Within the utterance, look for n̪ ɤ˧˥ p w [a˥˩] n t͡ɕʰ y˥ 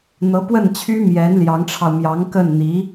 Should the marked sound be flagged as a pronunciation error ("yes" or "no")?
yes